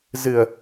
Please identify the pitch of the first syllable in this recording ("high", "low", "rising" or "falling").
low